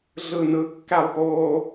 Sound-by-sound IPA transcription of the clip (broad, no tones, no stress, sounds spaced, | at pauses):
ɮ ɯ n ɯ kː æ lˠ p oː